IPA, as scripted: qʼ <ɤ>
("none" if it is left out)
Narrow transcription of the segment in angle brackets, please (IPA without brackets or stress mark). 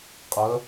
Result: ɤ